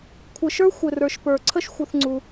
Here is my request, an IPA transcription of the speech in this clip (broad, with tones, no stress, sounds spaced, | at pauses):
kʷʰ ɘ˨ ʃ ə˞˦ xʷ ɘ˨ r ə˞˨ ʃ p ə˞˨ ǀʰ ə˦ ʃ xʷ ə˧ θ ŋ͡ǀ u˧